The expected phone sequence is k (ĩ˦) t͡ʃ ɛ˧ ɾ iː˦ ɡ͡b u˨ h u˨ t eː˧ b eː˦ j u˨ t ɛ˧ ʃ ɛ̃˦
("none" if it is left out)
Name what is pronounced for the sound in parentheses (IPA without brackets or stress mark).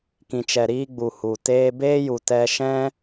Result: ĩ˧